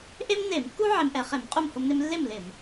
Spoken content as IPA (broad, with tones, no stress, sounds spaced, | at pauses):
ʔ e˥ m n e˧˩˧ m kː u˥ ʕ e˧ m ʔ ɛ˧˩˧ χ e˧˩˧ m qʼ u˥˩ m h ʊ˧ m n e˧ m lː e˥˩ m l ɪ˧˩˧ m